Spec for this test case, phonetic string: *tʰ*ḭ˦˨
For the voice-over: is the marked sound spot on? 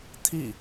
yes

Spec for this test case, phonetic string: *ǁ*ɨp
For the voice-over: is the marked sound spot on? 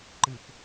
no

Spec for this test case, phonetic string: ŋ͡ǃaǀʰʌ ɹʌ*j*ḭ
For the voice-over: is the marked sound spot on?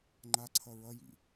yes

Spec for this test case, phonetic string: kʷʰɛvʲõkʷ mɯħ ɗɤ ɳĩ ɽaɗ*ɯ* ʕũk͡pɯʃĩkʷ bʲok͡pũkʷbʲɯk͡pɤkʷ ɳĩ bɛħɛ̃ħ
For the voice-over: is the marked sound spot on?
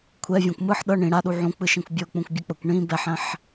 no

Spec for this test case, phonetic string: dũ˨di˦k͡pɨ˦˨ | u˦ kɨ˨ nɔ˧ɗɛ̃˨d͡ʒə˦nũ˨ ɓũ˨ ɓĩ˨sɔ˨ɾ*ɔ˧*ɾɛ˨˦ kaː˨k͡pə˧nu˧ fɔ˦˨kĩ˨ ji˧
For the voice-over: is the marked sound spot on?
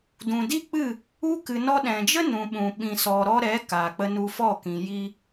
yes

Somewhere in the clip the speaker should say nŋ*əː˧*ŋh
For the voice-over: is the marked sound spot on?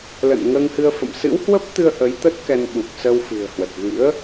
yes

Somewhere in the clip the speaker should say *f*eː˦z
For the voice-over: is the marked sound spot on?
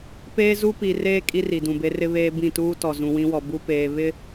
no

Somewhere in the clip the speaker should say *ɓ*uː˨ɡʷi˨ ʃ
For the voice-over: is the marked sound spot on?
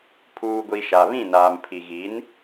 no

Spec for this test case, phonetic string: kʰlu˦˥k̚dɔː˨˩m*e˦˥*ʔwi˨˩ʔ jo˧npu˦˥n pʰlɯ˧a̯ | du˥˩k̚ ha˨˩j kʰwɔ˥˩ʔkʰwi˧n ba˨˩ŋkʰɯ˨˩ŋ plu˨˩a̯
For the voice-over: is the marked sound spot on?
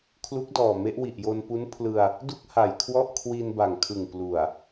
yes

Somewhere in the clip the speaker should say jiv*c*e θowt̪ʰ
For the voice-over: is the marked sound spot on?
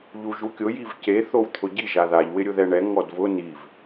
yes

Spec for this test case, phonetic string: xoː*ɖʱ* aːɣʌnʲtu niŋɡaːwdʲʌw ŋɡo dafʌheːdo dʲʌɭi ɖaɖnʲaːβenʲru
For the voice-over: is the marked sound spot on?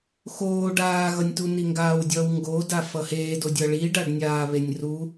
no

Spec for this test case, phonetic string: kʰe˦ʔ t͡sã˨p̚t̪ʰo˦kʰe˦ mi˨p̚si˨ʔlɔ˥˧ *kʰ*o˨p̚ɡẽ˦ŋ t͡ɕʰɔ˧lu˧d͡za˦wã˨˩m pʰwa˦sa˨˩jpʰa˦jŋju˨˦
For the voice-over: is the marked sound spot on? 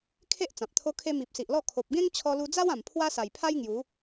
yes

